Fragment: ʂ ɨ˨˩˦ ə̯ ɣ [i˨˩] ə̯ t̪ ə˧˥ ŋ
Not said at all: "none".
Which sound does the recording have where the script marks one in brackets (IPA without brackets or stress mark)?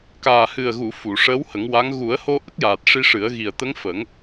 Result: i˨˩